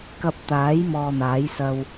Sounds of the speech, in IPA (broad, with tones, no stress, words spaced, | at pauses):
kɐ˧p̚t̪aː˨˥j mɔː˧n̪aː˨˥jsɐ˧w